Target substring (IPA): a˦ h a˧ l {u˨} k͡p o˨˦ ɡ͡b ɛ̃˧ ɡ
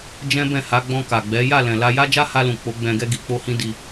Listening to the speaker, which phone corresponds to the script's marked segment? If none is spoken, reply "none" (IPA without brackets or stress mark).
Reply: ũ˨